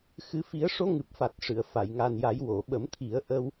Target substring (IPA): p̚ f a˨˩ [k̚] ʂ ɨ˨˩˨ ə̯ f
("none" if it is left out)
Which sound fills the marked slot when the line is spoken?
t̚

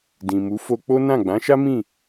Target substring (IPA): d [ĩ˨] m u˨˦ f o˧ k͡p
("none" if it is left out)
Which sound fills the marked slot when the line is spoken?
ĩ˨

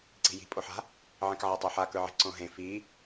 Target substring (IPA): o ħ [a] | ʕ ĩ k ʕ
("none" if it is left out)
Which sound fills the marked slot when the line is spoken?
a̤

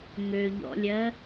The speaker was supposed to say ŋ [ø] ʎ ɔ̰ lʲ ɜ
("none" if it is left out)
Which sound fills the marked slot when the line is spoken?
ø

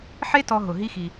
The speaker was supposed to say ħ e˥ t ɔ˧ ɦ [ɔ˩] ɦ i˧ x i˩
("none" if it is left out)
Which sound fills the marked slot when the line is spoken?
ʊ˩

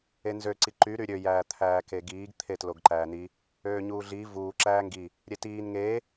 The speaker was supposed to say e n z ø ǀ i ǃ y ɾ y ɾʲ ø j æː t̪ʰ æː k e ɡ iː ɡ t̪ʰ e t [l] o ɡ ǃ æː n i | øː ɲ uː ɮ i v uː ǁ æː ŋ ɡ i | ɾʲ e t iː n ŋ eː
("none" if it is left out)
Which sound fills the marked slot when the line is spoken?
l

